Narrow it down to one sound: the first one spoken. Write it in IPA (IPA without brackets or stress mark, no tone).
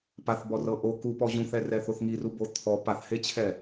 p